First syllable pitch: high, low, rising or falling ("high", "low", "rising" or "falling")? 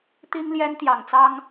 high